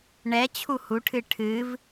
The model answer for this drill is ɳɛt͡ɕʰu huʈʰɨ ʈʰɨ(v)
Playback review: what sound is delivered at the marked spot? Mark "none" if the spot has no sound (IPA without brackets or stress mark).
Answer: v